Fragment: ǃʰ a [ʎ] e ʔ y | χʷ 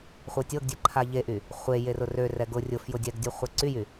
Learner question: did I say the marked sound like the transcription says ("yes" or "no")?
yes